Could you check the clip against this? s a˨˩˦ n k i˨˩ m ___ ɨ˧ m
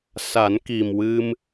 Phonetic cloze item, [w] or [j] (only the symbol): w